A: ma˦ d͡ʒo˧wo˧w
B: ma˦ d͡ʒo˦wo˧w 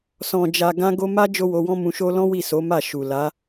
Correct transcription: B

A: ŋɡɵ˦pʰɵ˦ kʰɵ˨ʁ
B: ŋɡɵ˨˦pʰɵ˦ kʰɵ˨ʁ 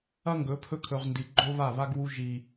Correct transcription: B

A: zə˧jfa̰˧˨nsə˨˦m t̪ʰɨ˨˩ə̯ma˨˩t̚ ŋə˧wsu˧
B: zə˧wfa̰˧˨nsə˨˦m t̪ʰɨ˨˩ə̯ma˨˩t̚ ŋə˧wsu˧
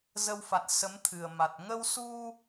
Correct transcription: B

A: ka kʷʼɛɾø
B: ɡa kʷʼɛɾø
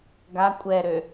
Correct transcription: B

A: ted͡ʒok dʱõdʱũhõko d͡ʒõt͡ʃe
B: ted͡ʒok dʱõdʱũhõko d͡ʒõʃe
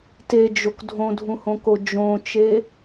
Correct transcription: A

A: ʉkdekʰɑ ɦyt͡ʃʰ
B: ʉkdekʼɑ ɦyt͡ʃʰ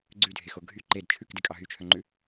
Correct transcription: B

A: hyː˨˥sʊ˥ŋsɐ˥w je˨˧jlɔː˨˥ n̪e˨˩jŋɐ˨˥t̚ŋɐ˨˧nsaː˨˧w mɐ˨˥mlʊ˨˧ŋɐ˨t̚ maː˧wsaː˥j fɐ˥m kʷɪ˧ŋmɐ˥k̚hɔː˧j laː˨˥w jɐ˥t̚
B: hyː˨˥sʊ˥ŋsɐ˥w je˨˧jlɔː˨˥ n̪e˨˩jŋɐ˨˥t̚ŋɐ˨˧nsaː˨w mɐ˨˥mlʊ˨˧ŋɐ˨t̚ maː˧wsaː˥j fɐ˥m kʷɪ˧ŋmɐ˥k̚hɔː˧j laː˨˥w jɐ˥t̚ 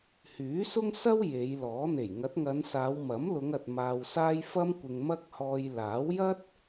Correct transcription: A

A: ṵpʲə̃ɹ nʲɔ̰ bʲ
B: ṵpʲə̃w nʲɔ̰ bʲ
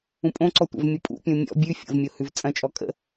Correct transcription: B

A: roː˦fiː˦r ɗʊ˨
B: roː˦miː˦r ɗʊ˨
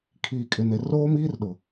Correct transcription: B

